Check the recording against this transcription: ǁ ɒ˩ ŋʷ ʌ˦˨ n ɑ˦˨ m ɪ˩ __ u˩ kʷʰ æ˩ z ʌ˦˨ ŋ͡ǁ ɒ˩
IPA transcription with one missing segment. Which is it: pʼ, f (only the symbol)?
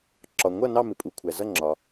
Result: pʼ